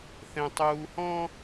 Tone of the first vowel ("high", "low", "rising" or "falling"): high